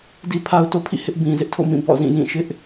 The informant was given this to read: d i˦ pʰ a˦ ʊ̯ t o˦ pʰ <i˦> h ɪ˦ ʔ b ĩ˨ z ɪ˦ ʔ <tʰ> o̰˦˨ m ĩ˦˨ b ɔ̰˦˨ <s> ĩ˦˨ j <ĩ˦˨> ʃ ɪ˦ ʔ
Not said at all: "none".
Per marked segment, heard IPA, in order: ḭ˦˨, tʰ, z, ĩ˦˨

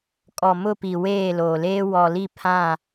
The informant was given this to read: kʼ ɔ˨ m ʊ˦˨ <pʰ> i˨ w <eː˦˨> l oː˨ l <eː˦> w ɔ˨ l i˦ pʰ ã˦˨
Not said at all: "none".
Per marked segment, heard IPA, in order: p, eː˦˨, eː˦

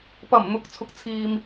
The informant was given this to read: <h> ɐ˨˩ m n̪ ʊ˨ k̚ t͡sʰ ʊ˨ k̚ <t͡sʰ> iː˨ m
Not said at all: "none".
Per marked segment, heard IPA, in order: p, t͡sʰ

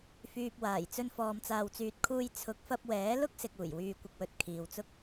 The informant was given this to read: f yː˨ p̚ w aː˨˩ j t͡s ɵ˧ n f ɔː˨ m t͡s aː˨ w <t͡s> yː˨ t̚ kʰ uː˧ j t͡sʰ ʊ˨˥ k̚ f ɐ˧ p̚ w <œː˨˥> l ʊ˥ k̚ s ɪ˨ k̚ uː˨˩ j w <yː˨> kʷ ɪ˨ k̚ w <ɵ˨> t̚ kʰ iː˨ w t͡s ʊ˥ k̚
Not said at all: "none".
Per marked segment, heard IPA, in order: t͡s, ɛː˨˥, yː˨, ɵ˨

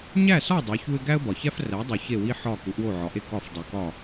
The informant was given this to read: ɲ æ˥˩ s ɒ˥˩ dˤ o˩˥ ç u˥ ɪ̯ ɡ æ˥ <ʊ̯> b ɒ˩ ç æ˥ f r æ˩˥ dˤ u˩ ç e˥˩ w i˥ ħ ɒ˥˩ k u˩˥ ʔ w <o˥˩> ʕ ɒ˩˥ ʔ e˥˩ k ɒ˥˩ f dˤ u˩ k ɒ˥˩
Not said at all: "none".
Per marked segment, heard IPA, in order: ə̯, o˥˩

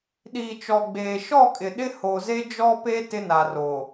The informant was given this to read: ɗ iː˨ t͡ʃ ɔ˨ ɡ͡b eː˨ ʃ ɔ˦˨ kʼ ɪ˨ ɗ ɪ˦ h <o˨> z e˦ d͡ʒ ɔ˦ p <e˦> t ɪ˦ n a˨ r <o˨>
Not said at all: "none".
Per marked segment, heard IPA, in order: o˨, e˦, o˨

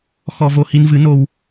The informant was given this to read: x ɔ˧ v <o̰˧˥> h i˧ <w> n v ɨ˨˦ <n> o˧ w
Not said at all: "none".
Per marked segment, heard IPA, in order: o˧, none, n

